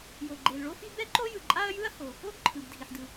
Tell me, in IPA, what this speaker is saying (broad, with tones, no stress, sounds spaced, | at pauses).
j o˩ ɡ͡ǃ e˩ l ɭ o˥ f i˥ b ɛ˥ ǃ o˥ j ɯ˩ ǃʼ a˥ ɐ̯ j ɯ˥ ɐ̯ h o˩ | o˥ ɡ ǃʰ ɯ˩ b dʱ i˩ ħ d ɯ˩